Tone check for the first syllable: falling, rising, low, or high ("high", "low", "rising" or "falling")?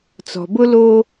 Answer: low